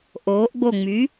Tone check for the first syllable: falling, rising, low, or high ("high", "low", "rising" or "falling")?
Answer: rising